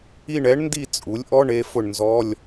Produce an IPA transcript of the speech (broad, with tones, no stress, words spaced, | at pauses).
i˦˨ɳɛ˧˥ɳndi˦˨ t͡sʼu˩˥lʲʔɔ˧˥˧ɳ e˧˥fʊ˦˨ɳnzɔ˧˥˧lʲ